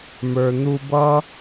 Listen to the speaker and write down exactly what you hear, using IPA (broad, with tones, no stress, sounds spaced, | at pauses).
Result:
m ə˞˨ n̪ u˧ b ʌ˦